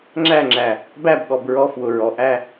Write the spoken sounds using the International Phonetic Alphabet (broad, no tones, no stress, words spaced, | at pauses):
ŋ͡ǁæŋ͡ǁæ | bæbɠɔb ɹɔfwʊ ɹɔʔæ